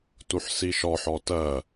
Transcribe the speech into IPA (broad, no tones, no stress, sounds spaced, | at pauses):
t u ħ s i ʃ ɔ ħ ɔ t ɜ